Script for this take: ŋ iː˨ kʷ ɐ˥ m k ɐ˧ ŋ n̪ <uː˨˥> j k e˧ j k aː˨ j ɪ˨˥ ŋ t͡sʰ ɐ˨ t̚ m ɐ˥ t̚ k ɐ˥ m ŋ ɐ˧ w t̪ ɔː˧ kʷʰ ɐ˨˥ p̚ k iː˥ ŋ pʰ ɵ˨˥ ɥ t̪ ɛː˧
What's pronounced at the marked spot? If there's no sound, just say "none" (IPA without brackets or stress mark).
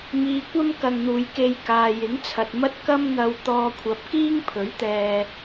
uː˨